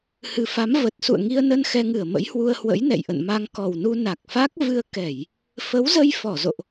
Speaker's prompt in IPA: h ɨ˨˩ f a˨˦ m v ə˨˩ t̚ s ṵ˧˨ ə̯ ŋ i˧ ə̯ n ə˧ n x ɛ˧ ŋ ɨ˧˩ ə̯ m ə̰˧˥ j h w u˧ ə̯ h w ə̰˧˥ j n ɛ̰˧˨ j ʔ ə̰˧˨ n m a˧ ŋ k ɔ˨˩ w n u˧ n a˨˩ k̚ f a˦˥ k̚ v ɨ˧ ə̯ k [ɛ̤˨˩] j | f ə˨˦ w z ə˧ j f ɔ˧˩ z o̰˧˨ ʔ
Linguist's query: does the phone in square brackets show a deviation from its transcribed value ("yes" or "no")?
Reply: yes